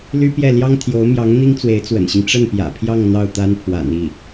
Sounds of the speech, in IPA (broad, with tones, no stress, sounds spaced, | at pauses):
l y˥ p j ɛ˥˩ l j ɑ˥ ŋ t̪ʰ j o˧˥ ʊ̯ m j ɑ˧˥ ŋ n̪ i˥ ŋ t͡s w e˧˥ ɪ̯ t͡s w ə̰˨˩ n ɕ i˦ ŋ ʈ͡ʂ ə˥˩ n p j ä̰˨˩ pʰ j ɑ˥˧ ŋ n̪ ɑ˥˩ ʊ̯ t̪ a˥ n pʰ w a̰˨˩ n i˥˩